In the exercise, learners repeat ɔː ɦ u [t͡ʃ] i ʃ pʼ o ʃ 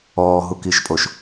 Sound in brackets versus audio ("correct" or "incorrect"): incorrect